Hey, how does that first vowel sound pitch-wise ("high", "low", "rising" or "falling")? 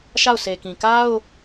falling